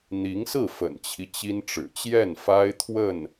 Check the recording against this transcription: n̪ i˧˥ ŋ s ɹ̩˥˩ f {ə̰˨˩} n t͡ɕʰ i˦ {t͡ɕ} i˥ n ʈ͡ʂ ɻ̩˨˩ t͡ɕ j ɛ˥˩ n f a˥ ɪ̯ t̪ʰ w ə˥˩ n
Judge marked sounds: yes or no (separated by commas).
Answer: yes, yes